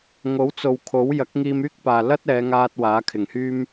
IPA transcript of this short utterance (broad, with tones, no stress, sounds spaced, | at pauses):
ŋ o˨˥ w t͡s o˨ w kʰ o˨˥ w j ɐ˨˥ k̚ ŋ iː˧ m yː˥ k̚ p aː˨ l ɐ˥ t̚ ɛː˨˧ ŋ aː˧ t̚ w aː˨˥ kʰ ɪ˨˩ ŋ h yː˥ m